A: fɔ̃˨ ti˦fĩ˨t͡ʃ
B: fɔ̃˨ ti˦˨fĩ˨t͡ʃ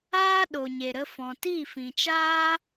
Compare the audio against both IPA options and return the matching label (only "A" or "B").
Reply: B